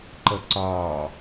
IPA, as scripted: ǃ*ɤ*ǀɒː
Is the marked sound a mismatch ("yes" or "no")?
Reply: no